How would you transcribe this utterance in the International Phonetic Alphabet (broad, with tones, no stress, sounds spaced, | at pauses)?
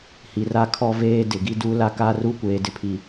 h i˨ r a˦ kʰ ɔ˦ v eː˦ d ɪ˨ ɡ i˦ d u˦ l a˦ k a˦ r u˦ kʷ eː˨ d ɪ˦ pʰ i˨